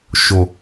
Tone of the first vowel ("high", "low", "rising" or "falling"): low